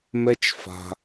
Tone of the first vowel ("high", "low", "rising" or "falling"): high